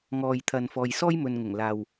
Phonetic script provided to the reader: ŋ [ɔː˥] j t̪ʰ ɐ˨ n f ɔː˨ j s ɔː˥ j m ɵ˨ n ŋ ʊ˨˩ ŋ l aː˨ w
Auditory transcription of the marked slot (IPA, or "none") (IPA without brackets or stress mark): ɔː˨